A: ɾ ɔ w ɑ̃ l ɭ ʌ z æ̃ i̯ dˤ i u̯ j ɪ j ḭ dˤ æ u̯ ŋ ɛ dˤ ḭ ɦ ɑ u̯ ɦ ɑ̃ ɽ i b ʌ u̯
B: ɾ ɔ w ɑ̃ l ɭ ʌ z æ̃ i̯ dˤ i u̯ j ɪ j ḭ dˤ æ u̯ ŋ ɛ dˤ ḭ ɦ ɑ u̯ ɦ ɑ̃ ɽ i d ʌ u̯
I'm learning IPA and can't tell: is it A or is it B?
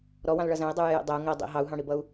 A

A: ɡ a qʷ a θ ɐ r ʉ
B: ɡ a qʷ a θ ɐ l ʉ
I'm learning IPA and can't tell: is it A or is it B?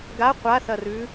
A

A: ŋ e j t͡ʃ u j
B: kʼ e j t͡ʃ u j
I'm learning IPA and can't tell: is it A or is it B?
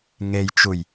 A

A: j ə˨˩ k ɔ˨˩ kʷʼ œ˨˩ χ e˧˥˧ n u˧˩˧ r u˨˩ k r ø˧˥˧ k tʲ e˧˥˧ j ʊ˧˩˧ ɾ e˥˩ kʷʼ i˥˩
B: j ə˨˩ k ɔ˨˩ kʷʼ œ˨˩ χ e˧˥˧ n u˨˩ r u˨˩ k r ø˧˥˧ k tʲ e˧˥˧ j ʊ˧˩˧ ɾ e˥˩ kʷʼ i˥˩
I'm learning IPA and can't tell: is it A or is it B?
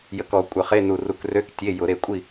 B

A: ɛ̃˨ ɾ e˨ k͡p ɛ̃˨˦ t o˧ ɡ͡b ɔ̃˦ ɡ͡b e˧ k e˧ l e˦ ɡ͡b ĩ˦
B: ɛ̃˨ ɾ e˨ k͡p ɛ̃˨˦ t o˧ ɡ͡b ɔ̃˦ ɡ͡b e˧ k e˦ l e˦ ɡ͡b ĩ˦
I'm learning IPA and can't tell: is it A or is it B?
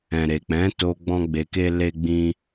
B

